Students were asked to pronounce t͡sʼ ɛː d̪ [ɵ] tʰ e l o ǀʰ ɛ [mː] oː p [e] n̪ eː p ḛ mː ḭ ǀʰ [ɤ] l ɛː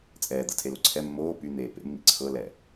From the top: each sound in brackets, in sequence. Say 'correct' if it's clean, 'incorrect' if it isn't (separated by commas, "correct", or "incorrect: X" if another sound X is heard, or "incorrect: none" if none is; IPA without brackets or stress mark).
incorrect: ɤ, correct, incorrect: y, correct